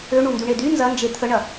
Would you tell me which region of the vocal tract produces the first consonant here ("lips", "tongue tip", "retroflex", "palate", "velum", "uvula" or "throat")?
retroflex